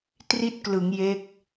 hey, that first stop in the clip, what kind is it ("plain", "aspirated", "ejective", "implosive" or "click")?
plain